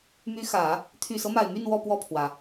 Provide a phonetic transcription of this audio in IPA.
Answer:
m y˧˥ x ä˨˩˦ | t̪ʰ y˨˩ s ɤ˦ m a˨˩ ɪ̯ m y˥˧ n w ɔ˥˧ p w ɔ˥˩ pʰ w ä˩

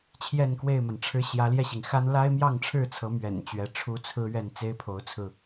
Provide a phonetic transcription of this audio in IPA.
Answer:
t͡ɕʰ j ɛ˥˨ n k w e˥˨ ɪ̯ m a˩ n ʈ͡ʂʰ ɻ̩˦ ɕ j ä˨˦ l j ɛ˧ ɕ i˩ ŋ x a˦ n l a˦ ɪ̯ m j ɑ˥˨ ŋ ʈ͡ʂʰ ɻ̩˥˨ t͡sʰ ɤ˨˦ m ɥ ɛ̰˨˩ n t͡ɕ ɥ ɛ˨˦ ʈ͡ʂʰ u˦ t͡sʰ ɹ̩˦ ɥ ɛ˥˨ n t͡s e˦ ɪ̯ pʰ o˨˦ ʊ̯ t͡sʰ ɹ̩˧

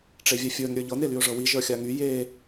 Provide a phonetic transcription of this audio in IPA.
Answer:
ʈ͡ʂ e vʲ ɛ fʲ ə˞ n ɾʲ ə˞ ʎ ɤ n e l y ʊ̯ ʐ ɤ w i ʒ ə˞ xʲ a ŋ y j e

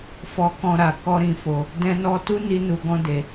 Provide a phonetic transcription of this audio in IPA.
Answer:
f ɔ˧ k ɔ̃˧ ɾ a˨ k ɔ˧ ɾ ĩ˨ f o˨ | d ɛ̃˧ n ɔ˧ t u˦ n i˧ n u˨ ɡ ɔ̃˧ d e˨

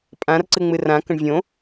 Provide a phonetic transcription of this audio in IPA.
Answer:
pʼ ã r ǀ ɨ ŋ͡m ɨ r ã k ə̃ ɳ vʲ õ

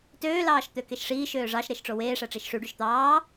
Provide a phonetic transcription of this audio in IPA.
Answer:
t øː l ɑː ʃ t̪ ø k e ʃ ʂ iː ʃ øː ʐ ɑ ʃ ɾ e ʃ ʈ͡ʂ o w eː ʂ æ ʈ͡ʂ i ʃ ʂ y ɖ y ʃ t̪ ɑː

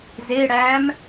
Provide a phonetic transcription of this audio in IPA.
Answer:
z e ɽ æː m

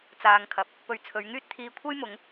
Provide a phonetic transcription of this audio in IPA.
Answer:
t͡s aː˨ ŋ kʰ ɐ˨˥ p̚ | p ɵ˨˩ ɥ t͡sʰ ɵ˨˧ ɥ ŋ yː˥ t̚ t̪ʰ iː˨ kʷʰ ɐ˥ j m ʊ˨˧ ŋ

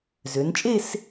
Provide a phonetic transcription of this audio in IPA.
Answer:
z ø˩˧ n t͡ʃʼ e˥˧ s

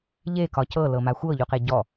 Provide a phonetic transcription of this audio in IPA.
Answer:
ʎ e k ɒ c ɤ l ɤ m a xʷ ɤ ʎ u q e ɟ ɔ

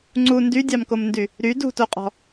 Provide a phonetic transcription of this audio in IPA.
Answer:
ŋ͡ǀ u n d y dʲ ɑ m k o m n d y | ɾ y d ṳ t o qʼ ɔ̤

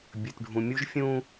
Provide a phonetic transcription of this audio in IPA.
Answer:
bʲ ɵ˨ t ɖʱ ũ˨ mʲ u˦ ʒ fʲ ũ˦

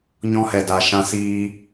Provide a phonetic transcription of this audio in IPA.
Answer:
ɲ ɔ̃˧ h ɛ˨ d a˨ ʃ ã˧ s iː˧

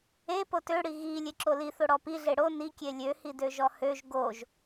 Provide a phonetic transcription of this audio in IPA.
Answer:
e p o t ø ɽ i ɣ i lʲ e ǁ o l i θ o ɽ ɔ p i ɮ e ɽ o n i kʲ e lʲ ø h i d ø ʒ ɔ h ø ʒ ɡ o ʒ

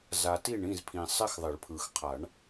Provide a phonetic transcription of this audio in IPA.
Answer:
z a˨ t i˥˨ ɳ ĩ˥˨ z pʰ ĩ˨ sˤ ɪ˥ x ðˤ ɪ˨˩˦ ɭ pʰ ɯ˨ x qʰ a˨˩˦ ɳ

